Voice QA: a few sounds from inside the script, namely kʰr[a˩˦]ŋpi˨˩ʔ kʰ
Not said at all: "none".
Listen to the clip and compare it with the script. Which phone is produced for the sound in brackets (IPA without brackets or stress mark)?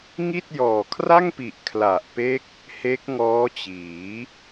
a˥˩